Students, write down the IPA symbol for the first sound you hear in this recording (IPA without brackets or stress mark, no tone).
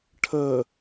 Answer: ʈʰ